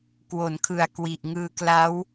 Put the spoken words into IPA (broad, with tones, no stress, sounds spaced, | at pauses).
k w o˩˦ n kʰ ɯ˨˩ a̯ k w i˨˩ ʔ ŋ ɯː˧ k l a˦˥ w